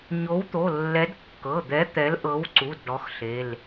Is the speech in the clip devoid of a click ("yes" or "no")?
no